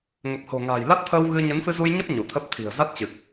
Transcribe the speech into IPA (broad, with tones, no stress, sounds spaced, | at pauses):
ŋ ə˨˩ p̚ h o̤˨˩ ŋ a̤ː˨˩ j l a˦˥ t̚ t̪ʰ əː˧ w ɣ ɨ˧ ɲ ə˨˦ n f ɨ˧ z u˧ j ɲ ə˦˥ p̚ ɲ u˧˩ t̪ʰ ə˦˥ p̚ t̪ʰ i̤˨˩ ə̯ z a˦˥ t̚ t͡ɕ ɨ˨˩ k̚